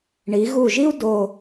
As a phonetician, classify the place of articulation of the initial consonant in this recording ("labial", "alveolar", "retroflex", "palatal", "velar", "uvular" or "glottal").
retroflex